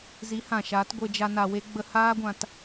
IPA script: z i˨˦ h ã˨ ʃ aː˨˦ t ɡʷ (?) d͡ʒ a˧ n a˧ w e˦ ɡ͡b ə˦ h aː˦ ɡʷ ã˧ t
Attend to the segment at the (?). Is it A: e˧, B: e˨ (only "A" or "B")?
A